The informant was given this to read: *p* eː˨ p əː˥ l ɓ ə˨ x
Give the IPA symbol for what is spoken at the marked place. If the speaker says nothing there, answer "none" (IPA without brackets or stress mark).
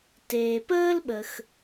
t